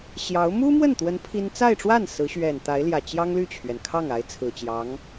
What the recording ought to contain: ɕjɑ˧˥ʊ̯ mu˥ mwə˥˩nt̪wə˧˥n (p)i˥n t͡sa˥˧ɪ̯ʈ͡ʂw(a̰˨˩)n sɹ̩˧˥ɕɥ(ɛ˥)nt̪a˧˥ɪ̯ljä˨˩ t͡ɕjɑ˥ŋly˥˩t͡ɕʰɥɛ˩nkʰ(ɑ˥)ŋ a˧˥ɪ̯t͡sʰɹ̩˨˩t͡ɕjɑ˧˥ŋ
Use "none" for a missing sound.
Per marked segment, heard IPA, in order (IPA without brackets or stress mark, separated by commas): pʰ, a˥˩, ɛ˨˩, ɑ˥˩